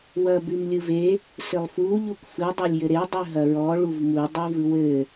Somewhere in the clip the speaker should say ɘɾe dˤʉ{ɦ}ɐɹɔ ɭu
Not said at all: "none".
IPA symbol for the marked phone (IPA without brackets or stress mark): ɦ